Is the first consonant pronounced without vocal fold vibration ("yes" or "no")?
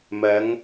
no